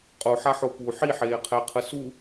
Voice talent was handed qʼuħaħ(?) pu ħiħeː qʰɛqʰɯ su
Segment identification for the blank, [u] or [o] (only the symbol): o